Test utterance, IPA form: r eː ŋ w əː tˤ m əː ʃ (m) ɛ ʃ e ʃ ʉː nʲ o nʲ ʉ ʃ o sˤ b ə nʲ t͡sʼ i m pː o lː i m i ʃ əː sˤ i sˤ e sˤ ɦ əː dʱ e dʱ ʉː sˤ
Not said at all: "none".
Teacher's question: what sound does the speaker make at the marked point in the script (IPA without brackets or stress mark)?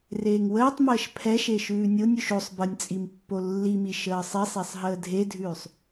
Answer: pʰ